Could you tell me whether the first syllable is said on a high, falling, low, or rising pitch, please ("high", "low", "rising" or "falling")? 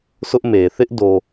high